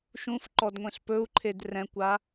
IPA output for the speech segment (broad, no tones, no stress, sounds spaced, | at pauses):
ʃ ũ f ǃ ɔ d ŋʷ ẽ ɬ p ɵ u̯ ǃʰ e d r ɛ̃ kʷ a